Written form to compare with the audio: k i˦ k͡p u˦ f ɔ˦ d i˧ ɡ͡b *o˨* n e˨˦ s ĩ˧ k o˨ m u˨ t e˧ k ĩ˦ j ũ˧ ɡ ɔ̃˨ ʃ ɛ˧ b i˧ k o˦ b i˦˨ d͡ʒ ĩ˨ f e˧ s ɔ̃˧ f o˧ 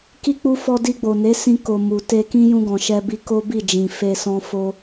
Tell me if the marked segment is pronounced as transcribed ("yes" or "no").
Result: yes